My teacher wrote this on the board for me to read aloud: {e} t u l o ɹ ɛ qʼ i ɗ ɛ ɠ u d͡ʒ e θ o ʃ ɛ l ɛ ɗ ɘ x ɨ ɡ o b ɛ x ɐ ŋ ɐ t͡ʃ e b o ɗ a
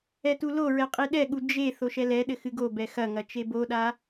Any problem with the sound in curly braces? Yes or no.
yes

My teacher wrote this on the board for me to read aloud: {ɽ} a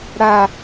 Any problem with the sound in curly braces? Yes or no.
no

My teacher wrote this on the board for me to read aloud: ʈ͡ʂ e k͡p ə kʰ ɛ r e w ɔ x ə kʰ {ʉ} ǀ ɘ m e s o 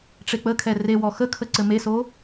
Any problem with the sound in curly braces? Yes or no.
yes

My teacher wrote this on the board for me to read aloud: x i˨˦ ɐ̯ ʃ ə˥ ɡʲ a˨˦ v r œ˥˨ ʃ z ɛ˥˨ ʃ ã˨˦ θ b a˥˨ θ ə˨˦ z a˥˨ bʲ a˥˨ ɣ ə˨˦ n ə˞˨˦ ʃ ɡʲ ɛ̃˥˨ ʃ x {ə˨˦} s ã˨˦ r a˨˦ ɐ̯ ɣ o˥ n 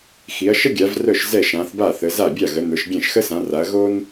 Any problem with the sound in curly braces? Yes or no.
yes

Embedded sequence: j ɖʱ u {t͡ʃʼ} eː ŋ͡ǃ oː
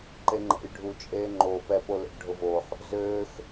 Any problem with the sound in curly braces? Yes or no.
no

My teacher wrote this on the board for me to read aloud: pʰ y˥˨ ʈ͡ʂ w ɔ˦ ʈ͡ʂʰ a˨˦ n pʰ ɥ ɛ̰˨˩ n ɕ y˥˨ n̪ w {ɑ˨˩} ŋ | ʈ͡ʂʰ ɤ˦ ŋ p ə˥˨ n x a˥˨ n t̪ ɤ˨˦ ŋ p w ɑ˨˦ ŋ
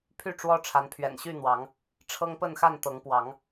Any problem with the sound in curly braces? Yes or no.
yes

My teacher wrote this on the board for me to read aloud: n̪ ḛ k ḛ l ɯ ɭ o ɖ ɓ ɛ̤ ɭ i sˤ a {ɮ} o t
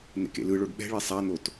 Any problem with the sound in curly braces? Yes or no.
yes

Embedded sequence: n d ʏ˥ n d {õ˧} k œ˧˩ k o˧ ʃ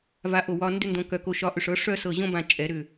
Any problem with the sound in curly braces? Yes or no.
no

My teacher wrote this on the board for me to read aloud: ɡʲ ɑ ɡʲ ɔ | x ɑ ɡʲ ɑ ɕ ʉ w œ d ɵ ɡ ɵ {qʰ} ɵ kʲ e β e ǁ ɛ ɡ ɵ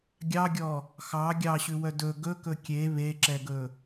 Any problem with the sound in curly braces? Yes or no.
yes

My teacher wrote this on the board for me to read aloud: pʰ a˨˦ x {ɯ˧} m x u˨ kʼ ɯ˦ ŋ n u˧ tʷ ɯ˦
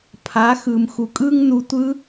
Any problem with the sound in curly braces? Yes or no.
yes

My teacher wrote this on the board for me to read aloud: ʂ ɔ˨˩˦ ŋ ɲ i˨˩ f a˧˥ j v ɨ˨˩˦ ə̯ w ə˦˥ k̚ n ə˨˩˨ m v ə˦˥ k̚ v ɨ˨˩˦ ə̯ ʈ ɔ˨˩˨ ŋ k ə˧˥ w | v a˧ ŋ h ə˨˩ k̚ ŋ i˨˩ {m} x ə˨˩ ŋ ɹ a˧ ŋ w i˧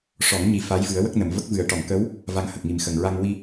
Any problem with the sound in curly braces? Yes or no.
no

